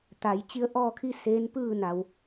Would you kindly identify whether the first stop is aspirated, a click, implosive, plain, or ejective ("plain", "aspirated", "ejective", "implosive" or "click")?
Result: plain